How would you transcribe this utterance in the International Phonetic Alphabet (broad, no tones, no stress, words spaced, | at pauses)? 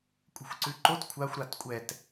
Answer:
kʷʼɛ̤xʷǀʉǃot kʷʰaxʷ ɾatkʷʼɛt